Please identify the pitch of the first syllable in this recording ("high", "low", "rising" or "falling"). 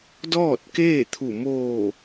falling